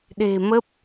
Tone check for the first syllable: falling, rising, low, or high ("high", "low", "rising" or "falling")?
low